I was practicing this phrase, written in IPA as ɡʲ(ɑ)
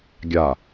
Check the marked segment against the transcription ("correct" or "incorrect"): incorrect